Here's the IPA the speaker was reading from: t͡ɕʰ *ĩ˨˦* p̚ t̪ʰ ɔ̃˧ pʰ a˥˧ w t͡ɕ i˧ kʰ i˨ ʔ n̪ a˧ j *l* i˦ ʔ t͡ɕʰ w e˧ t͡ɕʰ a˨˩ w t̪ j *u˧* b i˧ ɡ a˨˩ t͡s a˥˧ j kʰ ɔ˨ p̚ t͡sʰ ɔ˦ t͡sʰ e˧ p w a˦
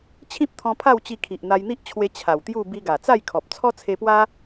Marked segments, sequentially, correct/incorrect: incorrect: ĩ˦, incorrect: n̪, incorrect: u˥˧

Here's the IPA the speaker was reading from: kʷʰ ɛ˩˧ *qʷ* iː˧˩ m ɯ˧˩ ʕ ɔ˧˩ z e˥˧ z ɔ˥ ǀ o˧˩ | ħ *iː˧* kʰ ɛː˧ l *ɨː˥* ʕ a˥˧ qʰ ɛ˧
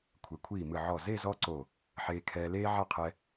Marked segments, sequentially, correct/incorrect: incorrect: kʷʰ, incorrect: eː˧, incorrect: eː˥

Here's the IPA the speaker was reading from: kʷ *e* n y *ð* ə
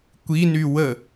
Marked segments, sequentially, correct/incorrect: incorrect: i, incorrect: w

